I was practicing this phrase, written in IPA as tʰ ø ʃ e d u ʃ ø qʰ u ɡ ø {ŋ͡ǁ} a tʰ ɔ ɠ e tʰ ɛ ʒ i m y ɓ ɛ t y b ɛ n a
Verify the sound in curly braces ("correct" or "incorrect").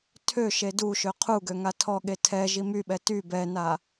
incorrect